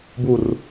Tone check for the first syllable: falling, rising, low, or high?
falling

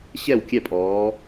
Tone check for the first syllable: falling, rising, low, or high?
falling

